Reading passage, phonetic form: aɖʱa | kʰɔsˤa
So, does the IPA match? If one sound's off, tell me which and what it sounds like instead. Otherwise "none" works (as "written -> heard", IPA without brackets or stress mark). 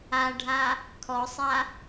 none